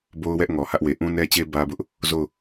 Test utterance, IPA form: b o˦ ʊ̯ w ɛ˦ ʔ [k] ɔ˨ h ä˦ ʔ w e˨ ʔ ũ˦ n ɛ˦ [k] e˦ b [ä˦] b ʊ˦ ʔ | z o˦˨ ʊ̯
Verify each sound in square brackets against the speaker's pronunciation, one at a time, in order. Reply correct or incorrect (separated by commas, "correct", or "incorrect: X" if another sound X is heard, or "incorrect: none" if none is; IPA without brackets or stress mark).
incorrect: ŋ, incorrect: t͡ɕ, correct